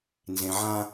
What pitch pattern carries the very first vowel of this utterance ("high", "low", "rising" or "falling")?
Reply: low